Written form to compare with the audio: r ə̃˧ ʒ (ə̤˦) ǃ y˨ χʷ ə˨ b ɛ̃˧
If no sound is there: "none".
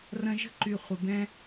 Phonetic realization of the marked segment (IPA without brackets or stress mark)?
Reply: ə̤˦